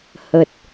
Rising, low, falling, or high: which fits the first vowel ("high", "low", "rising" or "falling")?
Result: low